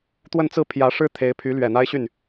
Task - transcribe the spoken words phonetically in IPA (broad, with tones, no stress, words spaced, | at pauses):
t̪wə˥˧n t͡sɹ̩˥˩pʰjä˧˥ʂɻ̩˥ t̪ʰe˧˥ɪ̯ pʰy˧˥lɥɛ˨˩ n̪a˥ɪ̯ɕy˥˩n